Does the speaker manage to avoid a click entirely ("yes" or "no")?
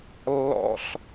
yes